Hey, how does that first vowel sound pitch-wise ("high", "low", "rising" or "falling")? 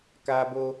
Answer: high